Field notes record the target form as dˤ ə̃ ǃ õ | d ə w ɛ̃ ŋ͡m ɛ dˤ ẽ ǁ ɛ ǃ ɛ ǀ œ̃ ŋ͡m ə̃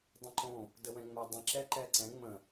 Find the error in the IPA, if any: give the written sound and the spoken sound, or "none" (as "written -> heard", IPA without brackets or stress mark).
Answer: œ̃ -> ɛ̃